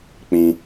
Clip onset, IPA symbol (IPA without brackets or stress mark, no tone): k͡p